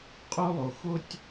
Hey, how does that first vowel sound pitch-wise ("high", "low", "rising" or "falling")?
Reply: high